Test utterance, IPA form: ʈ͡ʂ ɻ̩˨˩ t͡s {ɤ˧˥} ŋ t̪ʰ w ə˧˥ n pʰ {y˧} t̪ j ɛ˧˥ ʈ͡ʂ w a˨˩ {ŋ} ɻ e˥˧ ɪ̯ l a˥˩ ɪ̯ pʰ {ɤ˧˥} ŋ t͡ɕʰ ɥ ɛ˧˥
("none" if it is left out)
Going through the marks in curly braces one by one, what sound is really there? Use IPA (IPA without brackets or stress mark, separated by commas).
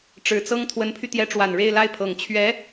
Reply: ɤ˥, y˧, n, ɤ˨˩